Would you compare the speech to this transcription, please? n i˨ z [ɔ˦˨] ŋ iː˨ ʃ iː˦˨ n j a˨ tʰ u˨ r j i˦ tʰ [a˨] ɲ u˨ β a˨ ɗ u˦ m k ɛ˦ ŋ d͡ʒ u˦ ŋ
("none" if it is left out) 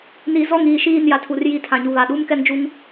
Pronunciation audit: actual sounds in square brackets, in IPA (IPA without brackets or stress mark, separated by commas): ɔ˦˨, ã˨